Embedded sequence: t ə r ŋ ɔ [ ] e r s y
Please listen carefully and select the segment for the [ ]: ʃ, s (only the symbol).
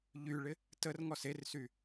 s